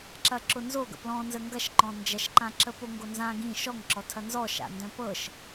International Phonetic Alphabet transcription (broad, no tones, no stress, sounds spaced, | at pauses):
ǁ ɐ ǁ ʊ n z o ɡ ə̰ p l ɔ̃ n z ə ŋ ɡ ɐ ʃ ǃ ɔ̃ n d͡ʒ ɐ ʃ ǃ ã ǁ ə p o ŋ ɡ o n z ã ɡ ĩ ʃ ɔ ŋ ǁ ɔ tʰ ɐ n z ɔ ʃ a̰ n d œ̃ p ɤ ʃ